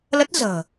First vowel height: mid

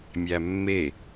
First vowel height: low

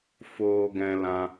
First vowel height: mid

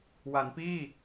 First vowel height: low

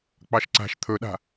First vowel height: low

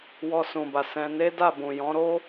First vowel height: mid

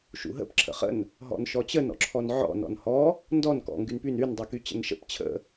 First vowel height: high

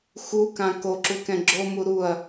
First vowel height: high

